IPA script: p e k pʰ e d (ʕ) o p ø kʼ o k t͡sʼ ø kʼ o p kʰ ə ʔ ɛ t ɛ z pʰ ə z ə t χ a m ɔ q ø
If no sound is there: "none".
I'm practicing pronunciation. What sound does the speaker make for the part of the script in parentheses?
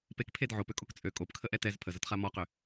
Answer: ʕ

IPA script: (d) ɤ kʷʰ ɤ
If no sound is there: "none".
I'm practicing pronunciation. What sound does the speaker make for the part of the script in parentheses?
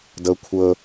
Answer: d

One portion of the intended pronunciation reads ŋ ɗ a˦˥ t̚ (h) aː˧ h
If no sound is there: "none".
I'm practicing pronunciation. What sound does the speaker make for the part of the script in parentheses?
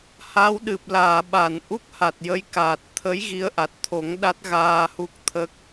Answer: ɣ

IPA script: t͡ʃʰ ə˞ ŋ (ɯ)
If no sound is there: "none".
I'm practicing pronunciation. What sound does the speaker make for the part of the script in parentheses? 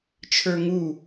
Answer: u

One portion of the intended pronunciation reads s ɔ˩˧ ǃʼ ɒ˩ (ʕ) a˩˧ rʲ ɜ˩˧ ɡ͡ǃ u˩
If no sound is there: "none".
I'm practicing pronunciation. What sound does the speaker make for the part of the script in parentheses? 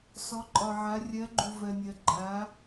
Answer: ʕ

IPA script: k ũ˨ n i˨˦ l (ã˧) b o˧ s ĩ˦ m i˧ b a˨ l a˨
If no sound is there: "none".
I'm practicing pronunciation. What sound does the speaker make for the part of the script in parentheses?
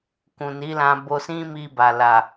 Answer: ã˧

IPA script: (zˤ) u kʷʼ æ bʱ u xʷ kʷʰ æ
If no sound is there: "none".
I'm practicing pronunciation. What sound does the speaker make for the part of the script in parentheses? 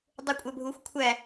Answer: dˤ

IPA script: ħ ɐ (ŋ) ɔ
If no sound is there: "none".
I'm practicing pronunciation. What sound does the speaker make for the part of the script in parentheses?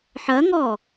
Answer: ŋ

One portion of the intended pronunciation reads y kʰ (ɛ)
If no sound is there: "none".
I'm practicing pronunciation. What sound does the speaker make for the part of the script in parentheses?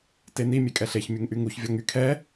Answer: ɛ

